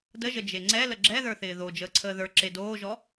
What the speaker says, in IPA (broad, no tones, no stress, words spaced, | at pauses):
dəʒə d͡ʒeŋ͡ǀɛ ləɡ͡ǁɛðə˞θɪː ðo d͡ʒəːǀʰəːðə˞ ǁedoːʒɔ